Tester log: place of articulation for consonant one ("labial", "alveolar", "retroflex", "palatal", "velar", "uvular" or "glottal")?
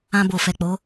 labial